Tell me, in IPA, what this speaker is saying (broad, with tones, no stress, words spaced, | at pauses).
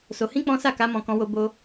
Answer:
so˧hĩ˦k͡pɔ̃˦ sa˦˨ka˧ mɔ̃˧kɔ̃˧wo˧ bo˦